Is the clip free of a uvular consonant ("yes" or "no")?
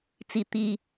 yes